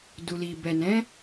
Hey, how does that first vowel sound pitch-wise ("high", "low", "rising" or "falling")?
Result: low